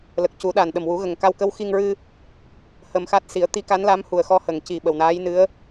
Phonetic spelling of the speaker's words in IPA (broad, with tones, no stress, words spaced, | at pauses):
lə˨˩k̚cu˨˩˦ɗa˨˩nɗə˨˩m wu˨˩˦ɣə˨˩ŋka˧wkə˧˥w xi˧ŋɹɨ˧ | hə˧mxa˦˥t̚ si˨˩˦ə̯t̪i˧˥ka˧˥n la˧˥mhu˨˩ə̯xɔ˧ hə˨˩ŋci˨˩ ɓə˨˩wnaː˧˥jnɨ˧˥ə̯